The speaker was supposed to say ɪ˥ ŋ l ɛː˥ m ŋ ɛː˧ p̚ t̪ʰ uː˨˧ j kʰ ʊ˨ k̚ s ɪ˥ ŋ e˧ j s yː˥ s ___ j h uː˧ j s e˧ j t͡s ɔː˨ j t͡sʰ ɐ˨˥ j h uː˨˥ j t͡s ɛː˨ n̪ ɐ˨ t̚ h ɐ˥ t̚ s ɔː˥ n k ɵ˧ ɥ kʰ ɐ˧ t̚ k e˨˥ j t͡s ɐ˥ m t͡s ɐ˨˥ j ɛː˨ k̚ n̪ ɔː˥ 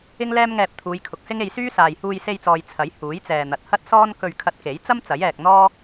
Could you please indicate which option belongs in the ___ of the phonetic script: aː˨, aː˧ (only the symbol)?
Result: aː˨